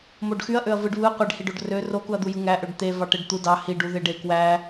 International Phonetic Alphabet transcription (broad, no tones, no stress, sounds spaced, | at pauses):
m o ɖ x y ɐ̯ ʔ ø ɐ̯ v ɯ ɖ β ɯ qʷ e ɖ h i ɖ o ɖ r ø r o k u ɐ̯ d̪ u j ɯ ŋ æ ʔ ø ɖ t̪ e v ɑ ʈ e ɖ t̪ u d ɑ h i ɖ u ð e ɖ e k w æ